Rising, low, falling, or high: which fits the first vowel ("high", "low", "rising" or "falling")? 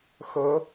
rising